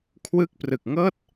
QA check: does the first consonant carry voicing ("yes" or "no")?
no